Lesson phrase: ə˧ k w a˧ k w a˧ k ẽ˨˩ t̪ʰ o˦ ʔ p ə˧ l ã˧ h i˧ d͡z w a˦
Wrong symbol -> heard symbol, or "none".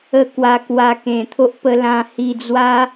none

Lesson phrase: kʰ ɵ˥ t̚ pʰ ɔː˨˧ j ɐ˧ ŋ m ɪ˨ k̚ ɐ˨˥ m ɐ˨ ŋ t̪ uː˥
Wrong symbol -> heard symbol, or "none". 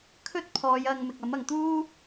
none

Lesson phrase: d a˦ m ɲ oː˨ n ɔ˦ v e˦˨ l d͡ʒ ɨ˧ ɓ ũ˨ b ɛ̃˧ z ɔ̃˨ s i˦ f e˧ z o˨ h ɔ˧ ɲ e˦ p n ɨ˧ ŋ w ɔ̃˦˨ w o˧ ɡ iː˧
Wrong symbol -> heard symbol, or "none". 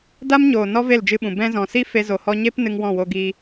none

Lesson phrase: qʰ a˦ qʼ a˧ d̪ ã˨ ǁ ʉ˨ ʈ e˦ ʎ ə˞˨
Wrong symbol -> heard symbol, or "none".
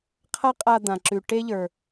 none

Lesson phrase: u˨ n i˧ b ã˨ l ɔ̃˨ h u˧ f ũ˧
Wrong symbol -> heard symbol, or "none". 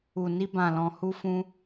none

